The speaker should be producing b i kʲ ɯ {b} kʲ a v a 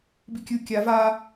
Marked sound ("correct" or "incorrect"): incorrect